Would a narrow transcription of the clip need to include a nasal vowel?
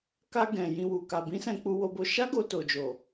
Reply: yes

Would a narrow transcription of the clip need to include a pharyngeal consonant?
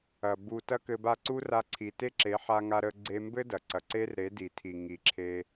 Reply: yes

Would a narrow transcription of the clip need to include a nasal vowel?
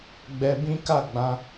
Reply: yes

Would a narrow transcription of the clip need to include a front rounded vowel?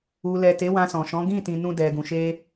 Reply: no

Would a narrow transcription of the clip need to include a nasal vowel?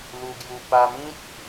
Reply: yes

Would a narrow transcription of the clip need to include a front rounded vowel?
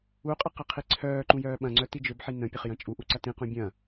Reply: yes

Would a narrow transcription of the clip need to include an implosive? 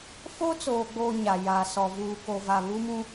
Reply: no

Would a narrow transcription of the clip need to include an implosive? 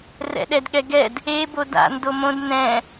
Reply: yes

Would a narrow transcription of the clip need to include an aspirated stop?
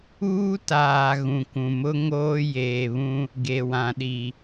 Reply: no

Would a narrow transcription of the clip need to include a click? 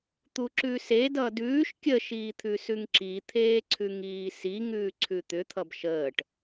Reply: yes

